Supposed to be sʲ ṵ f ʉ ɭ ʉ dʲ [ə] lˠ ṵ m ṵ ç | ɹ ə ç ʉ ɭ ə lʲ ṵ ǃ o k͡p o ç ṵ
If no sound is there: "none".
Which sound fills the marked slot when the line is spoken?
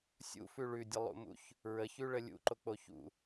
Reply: ə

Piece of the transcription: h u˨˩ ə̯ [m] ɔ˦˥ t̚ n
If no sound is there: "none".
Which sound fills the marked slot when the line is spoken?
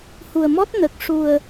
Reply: m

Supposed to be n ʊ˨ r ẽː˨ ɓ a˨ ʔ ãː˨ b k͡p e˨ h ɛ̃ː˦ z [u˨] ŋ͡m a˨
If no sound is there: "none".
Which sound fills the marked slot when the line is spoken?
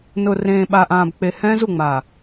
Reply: u˨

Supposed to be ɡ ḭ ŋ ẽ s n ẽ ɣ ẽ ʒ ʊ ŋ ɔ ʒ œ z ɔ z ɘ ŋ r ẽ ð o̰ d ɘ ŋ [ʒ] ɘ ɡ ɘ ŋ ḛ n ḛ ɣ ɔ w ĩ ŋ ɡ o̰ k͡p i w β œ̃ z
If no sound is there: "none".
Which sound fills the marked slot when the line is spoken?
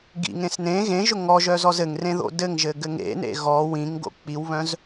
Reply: ʒ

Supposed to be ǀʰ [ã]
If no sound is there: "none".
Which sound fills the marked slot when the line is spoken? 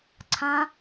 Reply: ã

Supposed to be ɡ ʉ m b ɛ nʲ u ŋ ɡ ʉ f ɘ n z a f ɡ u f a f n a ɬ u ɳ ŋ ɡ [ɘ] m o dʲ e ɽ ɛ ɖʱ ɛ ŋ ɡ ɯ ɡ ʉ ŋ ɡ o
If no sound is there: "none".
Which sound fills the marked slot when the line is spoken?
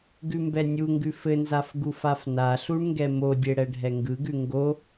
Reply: ɛ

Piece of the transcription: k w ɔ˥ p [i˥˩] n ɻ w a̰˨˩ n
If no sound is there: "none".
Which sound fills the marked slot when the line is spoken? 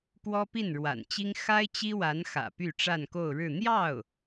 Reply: i˥˩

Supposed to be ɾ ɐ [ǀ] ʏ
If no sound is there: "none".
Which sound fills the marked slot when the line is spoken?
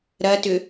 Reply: t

